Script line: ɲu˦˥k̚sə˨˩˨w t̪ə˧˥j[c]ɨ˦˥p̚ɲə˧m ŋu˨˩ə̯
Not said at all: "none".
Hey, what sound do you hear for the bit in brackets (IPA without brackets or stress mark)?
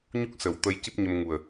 c